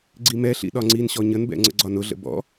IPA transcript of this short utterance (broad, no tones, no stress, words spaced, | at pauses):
ɡ͡ǀimɛɬḭ ɗɒŋ͡ǀinɕɔ ɲənbɛ̰ ŋ͡ǀə̰ɡ͡ǀɒnʊɮə̰ bɔ̰